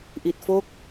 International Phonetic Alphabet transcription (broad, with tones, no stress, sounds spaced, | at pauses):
ʔ i˨˩ t̚ f o˥˩ k̚